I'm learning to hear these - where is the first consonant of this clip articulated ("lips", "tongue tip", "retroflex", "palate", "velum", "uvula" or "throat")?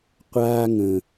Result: uvula